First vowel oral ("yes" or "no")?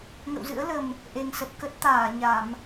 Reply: yes